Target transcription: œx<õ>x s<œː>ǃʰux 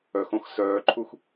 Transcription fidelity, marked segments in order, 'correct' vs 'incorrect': correct, correct

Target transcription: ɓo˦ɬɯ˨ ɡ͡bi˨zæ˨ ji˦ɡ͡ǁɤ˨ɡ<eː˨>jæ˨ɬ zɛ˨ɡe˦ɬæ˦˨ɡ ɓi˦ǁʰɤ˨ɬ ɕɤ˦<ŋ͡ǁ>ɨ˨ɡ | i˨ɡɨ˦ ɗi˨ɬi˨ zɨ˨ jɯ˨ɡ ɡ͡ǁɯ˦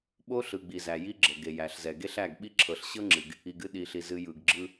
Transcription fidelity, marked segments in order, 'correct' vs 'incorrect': incorrect: e˨, correct

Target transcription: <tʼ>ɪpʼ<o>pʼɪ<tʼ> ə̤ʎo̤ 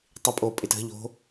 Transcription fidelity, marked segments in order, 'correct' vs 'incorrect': incorrect: tˤ, incorrect: oː, incorrect: t

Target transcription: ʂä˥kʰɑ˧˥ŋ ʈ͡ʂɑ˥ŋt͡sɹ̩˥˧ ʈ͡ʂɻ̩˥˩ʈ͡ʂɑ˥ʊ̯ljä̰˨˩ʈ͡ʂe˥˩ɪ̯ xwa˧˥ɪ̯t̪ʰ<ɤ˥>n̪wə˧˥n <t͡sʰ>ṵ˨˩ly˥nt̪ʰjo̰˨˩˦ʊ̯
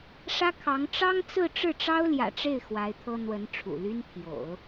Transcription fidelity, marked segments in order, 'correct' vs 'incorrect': correct, incorrect: ʈ͡ʂʰ

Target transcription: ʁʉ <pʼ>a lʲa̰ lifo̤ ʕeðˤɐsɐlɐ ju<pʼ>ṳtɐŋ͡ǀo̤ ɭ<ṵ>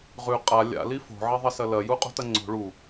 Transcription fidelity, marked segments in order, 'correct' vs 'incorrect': incorrect: qʼ, incorrect: qʼ, incorrect: u

